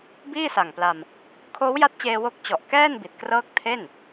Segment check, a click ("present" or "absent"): absent